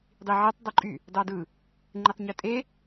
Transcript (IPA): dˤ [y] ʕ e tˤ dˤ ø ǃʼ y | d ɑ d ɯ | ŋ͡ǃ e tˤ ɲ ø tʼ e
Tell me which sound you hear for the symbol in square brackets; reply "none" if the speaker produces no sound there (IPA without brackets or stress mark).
i